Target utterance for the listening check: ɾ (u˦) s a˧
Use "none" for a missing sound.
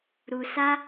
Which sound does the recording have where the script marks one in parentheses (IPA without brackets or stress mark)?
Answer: u˨